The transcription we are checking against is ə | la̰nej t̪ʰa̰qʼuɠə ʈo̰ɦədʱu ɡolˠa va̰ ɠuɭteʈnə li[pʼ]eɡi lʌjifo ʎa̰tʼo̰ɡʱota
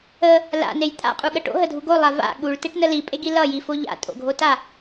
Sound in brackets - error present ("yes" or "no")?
no